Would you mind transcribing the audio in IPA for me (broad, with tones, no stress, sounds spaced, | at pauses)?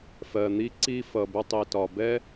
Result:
f ɜ˨ n̪ i˦ ǀ i˦ f ʌ˨ b ʊ˧ tˤ i˨ t ɒ˨ b ɛ˦